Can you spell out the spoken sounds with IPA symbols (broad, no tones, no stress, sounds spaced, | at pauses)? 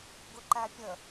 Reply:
ɡ ʊ ǃ æ pʲ ə